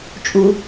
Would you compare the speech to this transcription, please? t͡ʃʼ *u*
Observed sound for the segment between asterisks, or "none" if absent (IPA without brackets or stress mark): u